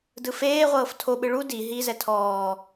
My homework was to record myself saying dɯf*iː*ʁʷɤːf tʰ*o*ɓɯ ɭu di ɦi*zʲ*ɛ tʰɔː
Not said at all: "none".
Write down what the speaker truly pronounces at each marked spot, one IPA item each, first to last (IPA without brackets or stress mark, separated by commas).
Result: eː, o, z